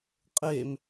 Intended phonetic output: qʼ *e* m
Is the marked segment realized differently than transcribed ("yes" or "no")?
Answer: no